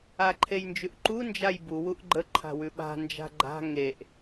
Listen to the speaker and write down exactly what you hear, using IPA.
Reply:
a ǃʰ e j n d͡ʒ ʉ ʔ ǃ u n d͡ʒ a j b u w u ʔ ɡ͡ǃ ə ǃʰ a̤ w ʉ ɓ a̤ n d͡ʒ a̤ ɡ͡ǃ a̤ ŋ e ʔ

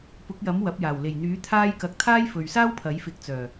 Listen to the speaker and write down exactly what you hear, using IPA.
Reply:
p ʊ˨˥ k̚ j ɐ˨˥ m w ɐ˨˥ p̚ j aː˨˩ w l e˨˩ j n̪ yː˨˥ t̪ʰ aː˥ j k ɐ˧ k̚ t̪ʰ aː˥ j f ɵ˨ ɥ s aː˥ w pʰ ɐ˨˥ j f ɪ˨˥ k̚ t͡s œː˨˩

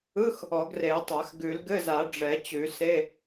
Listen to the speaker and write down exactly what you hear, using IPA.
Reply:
ɯ˧˥˧ x | ɔ˨˩˦ ɡ r e˨˩˦ ə̯ tˤ a˨˩˦ x ɡ ʉ˨˩˦ l ɡ ɘ˧˥˧ z a˨˩˦ ɖ͡ʐ ɛ˨˩˦ t͡ɕ ʉ˨˩˦ s e˧˥˧

